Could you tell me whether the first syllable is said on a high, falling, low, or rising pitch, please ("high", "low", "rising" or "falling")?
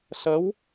rising